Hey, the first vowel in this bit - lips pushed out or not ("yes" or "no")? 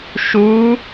yes